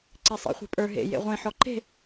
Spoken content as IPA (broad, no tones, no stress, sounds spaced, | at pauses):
ǀ e sˤ ḭ χʷ e̤ pʼ ə˞ ɦ ḛ j ḛ ʁʷ ẽ ħ ɔ ǃ e̤